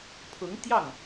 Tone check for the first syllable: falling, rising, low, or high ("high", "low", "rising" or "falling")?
rising